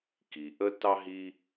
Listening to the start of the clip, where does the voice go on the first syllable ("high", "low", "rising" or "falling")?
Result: low